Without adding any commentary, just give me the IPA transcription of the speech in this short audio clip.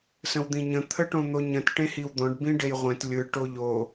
s ə̃ w d̪ ĩ ɲ ə̃ t̪ʰ ə ʈ õ n̪ o ɲ ə̃ t ʈ ẽ h i w d̪ ɔ̃ ɖ b ĩ ɖ e j ʁʷ ẽ t lʲ ɯ ʈ o ʎ o

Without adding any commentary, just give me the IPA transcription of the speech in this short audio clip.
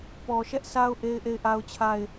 p ɔ˨ ʃ ɛ˦ ʔ sʰ a˦ ʊ̯ ʔ e˦ ɪ̯ ʔ e˦˨ ɪ̯ ʔ a˦ ʊ̯ t͡ɕʰ a˦˨ ɪ̯

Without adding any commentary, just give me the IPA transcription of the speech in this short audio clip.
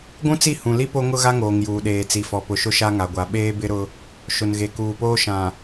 ɡʷ ũ˦ t͡s i˦˨ h ũ˨ l i˦ p o˦ ŋ ʊ˦ ɣ a˦ ŋ oː˨ ŋ j uː˨ ɗ eː˨ t͡s i˨ f ɔ˨ p ʊ˨ ʃ ʊ˦ ʃ a˦ ŋ a˨ ɡʷ a˨ ɓ eː˦ b ɪ˦ ɾ ʊ˦ | ʃ ʊ˨ n ɣ e˨ k uː˨ p oː˦ ʃ ã˨

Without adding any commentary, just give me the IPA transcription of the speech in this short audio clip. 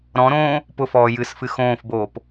ɾ ɔ̃ ɾ õː | p ʊ f ɔː j ɨ s f ɨ x õː f b oː p

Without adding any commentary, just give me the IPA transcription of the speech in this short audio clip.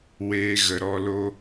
w eː˧ ɣ ə˨ ɾ ɔ˧ l o˦

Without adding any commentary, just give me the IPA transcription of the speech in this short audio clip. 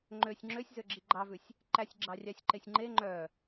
ŋ͡ǃ ø sʲ ŋ͡ǁ ø sʲ z ø ɡ͡ǁ i ɡ͡ǃ ɑ v ʉ sʲ | ǃ æ sʲ ɡ͡ǁ ɑ rʲ ɑ sʲ ǃ e sʲ ŋ͡ǃ e ŋ͡ǃ œ

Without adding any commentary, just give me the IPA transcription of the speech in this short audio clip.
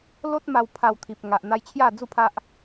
l o˦ t̚ m a˧ w pʰ a˧ w t̪ʰ i˨ p̚ ŋ a˨ ʔ n̪ a˧ j t͡ɕʰ j a˥˧ d͡z u˥˧ pʰ a˦ ʔ

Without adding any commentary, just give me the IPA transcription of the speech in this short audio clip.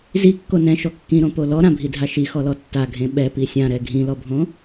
z i kː o n ɛ̃ ʃ ɔ kː ĩ ɾ õ p o l ɔ ɾ ã bʱ i dʱ a ʃ i x ɔ l ɔ tː a ɡʱ ẽ ɓ ɛ p i sʲ ã ɾ ɛ ɡʱ ĩ l ɔ bʱ õ

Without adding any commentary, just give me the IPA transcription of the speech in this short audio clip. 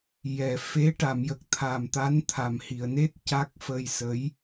j ɛ˨˩˨ f e˧˥ ʈ a˨˩˨ m j ə˨˩ k̚ t̪ʰ a˨˩ m t̪ a˧˥ n t̪ʰ a˨˩ m h i˨˩˨ ə̯ n e˦˥ t̚ c a˦˥ k̚ f ə˧ j s ə˧˥ j

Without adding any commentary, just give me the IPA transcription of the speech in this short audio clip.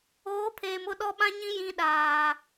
oː˨˦ pʰ eː˨ m ʊ˦˨ ɗ ɔ˦ ɓ ã˦ ɲ ĩ˦ j ĩ˦ ɗ aː˨

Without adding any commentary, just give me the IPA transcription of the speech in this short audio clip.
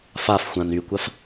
f a f xʷ ã n y kʷ a f

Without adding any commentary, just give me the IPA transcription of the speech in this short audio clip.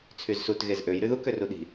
t͡sʰ y z s u t ɣ e z ʔ ø j ɾ y ð u k ø r u ɗ i̤

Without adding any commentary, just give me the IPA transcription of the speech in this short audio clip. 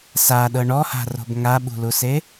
s a ɗ ɤ ɳ ɔ h a̤ r o̤ b ŋ a ɓ ṳ l u s e

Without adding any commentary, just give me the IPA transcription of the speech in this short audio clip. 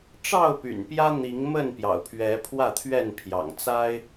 ʈ͡ʂ ɑ˥˨ ʊ̯ p y̰˨˩ n p j ä˦ n̪ i˨˦ ŋ m ə˥˨ n p j ɑ̰˨˩ ʊ̯ pʰ ɥ ɛ˨˦ pʰ w ä˥˨ t̪ʰ ɥ ɛ˥˨ n pʰ j ɑ̰˨˩ ŋ t͡s a˦ ɪ̯

